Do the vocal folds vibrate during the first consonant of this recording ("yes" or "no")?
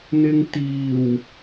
yes